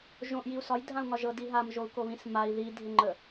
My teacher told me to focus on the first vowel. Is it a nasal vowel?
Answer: yes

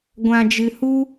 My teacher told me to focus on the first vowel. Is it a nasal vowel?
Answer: yes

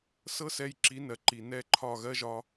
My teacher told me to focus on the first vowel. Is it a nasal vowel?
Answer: no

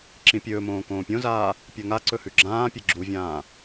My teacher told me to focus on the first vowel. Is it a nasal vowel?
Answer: yes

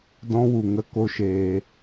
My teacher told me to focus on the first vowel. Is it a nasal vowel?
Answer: yes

